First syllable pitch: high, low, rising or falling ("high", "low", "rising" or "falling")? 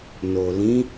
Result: low